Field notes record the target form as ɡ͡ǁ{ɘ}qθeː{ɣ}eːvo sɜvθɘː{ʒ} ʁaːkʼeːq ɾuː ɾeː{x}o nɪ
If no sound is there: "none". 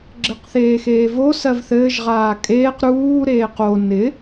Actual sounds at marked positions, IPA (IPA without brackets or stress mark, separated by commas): ɘ, x, ʒ, q